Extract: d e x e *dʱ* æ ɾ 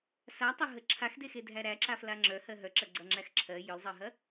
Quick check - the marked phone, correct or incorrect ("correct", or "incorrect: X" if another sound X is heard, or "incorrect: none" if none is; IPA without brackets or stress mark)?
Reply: correct